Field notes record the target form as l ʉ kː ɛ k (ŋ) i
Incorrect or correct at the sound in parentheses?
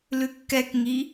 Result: correct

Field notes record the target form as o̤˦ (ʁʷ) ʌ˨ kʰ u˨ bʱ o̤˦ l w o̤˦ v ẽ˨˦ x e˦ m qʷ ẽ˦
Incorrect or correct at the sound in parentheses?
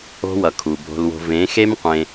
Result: incorrect: w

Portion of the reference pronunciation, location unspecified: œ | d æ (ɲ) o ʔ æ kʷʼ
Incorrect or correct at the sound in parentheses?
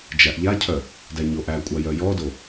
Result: correct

